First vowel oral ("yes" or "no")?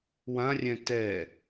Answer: no